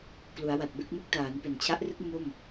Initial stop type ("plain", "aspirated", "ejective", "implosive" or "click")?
plain